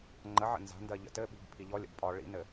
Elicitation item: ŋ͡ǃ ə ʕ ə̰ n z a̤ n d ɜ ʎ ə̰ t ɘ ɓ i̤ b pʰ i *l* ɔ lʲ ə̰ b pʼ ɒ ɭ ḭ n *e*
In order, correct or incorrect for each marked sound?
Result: incorrect, incorrect

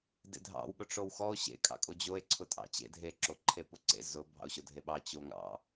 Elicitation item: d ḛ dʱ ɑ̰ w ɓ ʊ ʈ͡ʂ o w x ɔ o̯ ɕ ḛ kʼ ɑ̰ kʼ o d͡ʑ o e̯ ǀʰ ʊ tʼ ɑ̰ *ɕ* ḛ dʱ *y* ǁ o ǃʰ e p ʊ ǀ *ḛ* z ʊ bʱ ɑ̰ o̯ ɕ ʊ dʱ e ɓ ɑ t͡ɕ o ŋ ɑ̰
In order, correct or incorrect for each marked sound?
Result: incorrect, incorrect, correct

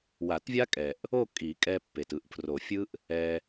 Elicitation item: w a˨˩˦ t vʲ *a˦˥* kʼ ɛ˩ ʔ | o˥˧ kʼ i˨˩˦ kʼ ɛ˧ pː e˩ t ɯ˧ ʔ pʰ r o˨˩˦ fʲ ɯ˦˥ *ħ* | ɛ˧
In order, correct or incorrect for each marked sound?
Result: correct, incorrect

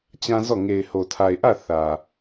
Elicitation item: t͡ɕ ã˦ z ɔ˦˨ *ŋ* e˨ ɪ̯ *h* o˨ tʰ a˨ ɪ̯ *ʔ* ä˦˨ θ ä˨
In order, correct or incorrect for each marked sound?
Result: correct, correct, correct

